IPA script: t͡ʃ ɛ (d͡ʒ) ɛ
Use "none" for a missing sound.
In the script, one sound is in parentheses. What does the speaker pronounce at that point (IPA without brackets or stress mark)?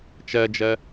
d͡ʒ